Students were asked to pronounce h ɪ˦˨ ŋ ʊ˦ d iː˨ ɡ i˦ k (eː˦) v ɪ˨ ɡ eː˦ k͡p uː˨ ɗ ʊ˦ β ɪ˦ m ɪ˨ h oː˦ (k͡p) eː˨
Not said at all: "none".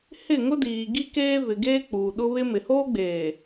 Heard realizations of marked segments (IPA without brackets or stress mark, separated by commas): eː˦, ɡ͡b